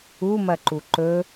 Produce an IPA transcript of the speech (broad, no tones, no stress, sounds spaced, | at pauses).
u m ɐ ǃ u ǃ ɵ